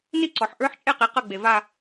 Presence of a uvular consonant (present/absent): present